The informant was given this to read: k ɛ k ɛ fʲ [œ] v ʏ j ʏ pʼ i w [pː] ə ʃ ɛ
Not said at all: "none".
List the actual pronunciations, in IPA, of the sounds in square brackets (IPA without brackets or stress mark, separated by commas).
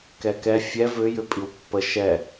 ɛ, pː